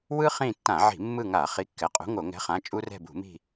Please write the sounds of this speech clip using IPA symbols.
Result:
w ɯ˦ χ ĩ˦˨ tː ã˧˩˧ ʕ i̤˧˩˧ mː ɯ˦˨ ŋ a˧˩˧ χ i˨˥ kː ɛ˩˧˩ qʼ ṳ˨˥ ŋ o˧˩˧ ŋ ɛ̤˨˥ χ ã˩˧˩ t͡ʃʼ u˦ r ɛ̤˦˨ b ṳ˧˩˧ m i̤˦˨

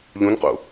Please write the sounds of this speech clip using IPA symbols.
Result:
ʎ ũ n q ṵ

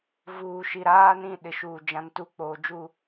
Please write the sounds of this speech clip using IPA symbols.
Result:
v uː˨ ʃ i˨ ɾ aː˦ n ĩ˦˨ ɗ ɪ˨ ʃ uː˨ d͡ʒ ã˨ n t u˦˨ k͡p oː˨ d͡ʒ u˦˨

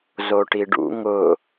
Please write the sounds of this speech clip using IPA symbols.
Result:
z o ʈ i ɖ ṵ ŋ ʊ

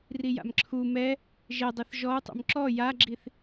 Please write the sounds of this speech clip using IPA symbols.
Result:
r i j a̰ m ǁʰ u m ɛ | ʒ e dˤ ɘ θ ʒ ɔ u̯ tˤ ṵ m ǁ ɔ j a ɡ͡ǁ i θ

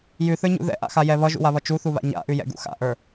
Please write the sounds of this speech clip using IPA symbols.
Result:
j ʉ θ ə˞ ɲ ṵ ð ɛ̰ ʔ a̰ x a j ɛ β ʌ ʒ ṵ w a β ʌ t͡ʃ u θ u β a̰ ɲ a̰ ʔ ʉ j ɛ̰ ɡ ṵ x a̰ ʔ ə˞

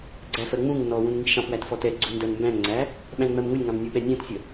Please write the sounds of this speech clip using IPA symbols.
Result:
ɡ͡ǀ æ f ɜ ŋ͡m ũ ŋ n ɔ w ũ n ŋ i ʃ ɑ̃ p w æ t f ɔ t ɛ ɡ͡ǀ u n d ɜ n m b æ̃ ŋ ŋ͡ǀ æ | ɓ æ̃ n ŋ͡m ɜ m ŋ ʊ lʲ ŋ ɑ̃ m nʲ u ɓ ɛ nʲ æ̃ t sʲ ə

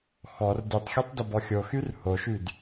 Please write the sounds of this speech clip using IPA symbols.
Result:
x ɔ r d y tˤ xʲ ɔ tˤ d ə b ɔ xʲ o x y r h o ʃ y d

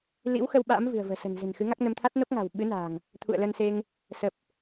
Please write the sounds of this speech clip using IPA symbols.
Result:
l ḭ˧˥ w x ə˧ w ɓ a̰ː˧˥ m v ɨ̤˨˩ ə̯ v ə̤ː˨˩ s ə̤˨˩ n z e̤˨˩ n x ɨ˨˦ ŋ a˦˥ k̚ n ə˧ m t̪ʰ a˦˥ t̚ n o˦˥ k̚ ŋ a̤˨˩ w ɓ ɨ˨˦ n a̤ː˨˩ ŋ | t̪ʰ ṵ˧˨ ə̯ l ə˧ n s e˧ ŋ | s ə˨˩ p̚

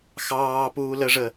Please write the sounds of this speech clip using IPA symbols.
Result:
x ɑː p uː l ə ʐ ə

